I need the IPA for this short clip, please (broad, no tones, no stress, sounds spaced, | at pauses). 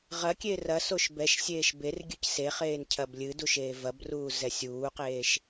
ʁ ɐ kʲ eː r ɐ s o ʃ b ɛ ʃ sʲ eː ʃ b e r ɡʲ ɨ c s e χ eː n cʰ ɐ b lʲ ɨ d u ʃ eː v ɐ b r uː z ɛ sʲ uː q eː ʃ